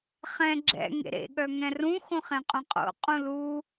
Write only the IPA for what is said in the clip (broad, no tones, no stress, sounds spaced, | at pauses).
χ ɛ̃ ɡ͡ǁ ɛ̰ ŋ ḛ ɾ ḛ ɠ œ ŋ ɛ̃ r ũ x õ χ ẽ qʼ ũ qʼ o̰ qʼ ũ l u